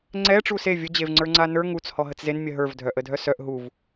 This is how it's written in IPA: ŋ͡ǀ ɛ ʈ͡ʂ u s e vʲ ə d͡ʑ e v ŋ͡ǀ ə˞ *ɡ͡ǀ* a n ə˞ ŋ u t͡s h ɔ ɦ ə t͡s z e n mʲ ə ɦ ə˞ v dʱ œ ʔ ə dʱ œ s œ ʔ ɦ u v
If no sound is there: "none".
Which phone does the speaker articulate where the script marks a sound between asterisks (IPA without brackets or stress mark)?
ŋ͡ǀ